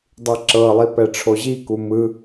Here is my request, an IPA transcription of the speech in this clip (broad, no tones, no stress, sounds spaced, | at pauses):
dˤ i ǁ ɤ lˠ i p ɛ ʈ͡ʂʰ o ʑ i k u m ɯ